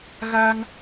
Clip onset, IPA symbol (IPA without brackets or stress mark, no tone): ɣ